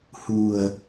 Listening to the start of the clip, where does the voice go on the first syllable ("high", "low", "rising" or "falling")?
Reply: low